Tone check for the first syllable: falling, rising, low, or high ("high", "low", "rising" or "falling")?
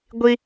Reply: high